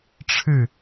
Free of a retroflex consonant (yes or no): no